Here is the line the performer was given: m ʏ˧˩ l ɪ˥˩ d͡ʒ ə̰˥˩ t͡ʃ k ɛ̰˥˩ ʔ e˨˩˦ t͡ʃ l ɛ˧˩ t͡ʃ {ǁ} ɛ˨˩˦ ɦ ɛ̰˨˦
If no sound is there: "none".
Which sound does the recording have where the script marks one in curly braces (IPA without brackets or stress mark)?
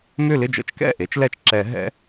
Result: ǁ